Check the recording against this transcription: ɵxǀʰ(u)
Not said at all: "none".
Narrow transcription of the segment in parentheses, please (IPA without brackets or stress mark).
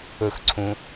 ũ